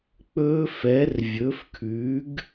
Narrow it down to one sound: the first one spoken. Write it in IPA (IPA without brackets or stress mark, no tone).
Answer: k͡p